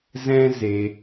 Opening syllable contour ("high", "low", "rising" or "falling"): high